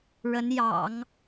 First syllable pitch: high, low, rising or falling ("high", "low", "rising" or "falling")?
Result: rising